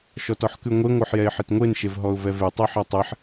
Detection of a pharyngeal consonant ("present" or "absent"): present